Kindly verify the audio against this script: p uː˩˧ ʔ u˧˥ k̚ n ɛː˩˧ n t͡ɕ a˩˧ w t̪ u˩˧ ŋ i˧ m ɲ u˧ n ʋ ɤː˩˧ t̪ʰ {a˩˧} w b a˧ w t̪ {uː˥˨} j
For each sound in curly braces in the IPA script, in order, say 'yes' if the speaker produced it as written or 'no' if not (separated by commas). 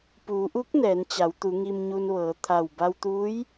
no, no